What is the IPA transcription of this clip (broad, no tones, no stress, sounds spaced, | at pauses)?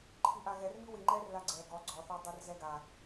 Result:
ǃʰ i ʔ a ɣ ɛ r m i w i ŋ͡ǃ ɛ r l a ɡ͡ǀ ɛ ɡ ɔ ɡ͡ǀ ɔ θ ɔ dˤ o r z ɛ ɡ a